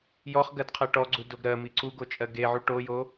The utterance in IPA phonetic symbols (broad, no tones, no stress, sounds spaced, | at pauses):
j ɔ χ ɡ ɜ d qʰ ɜ ʈ ɔ ɡ͡ǀ u d o ɡ ɾ ɜ m i ǀ u ɡ o t͡ʃʼ ɜ ɡ e ʕ u ʈ o j o